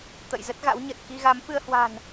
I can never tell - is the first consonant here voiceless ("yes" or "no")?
yes